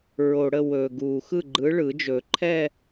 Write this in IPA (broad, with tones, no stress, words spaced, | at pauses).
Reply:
ɹo˩ɽə˥˩ wɵː˩ɡuː˩xɯ˥˩ ɡ͡ǃɯ˨˥ɭɯ˨˩˦d͡ʒɵ˨˩˦ǃʰɛ˥˧